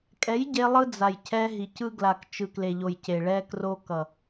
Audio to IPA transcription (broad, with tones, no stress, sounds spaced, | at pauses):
kʼ ɛ˨˦ j ɟ e˧ lˠ ɯ˧ d͡z a˨ j cʰ ɛ˧ ɦ i˨ c ɯ˧ ɡ l a˨ k t͡ʃ ɯ˨ k l e˨ ʎ o˨ j c e˨ ɭ ɛ˧ k r o˧ k ʌ˨